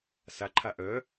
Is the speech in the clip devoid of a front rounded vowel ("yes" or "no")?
no